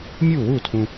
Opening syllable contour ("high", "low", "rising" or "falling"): falling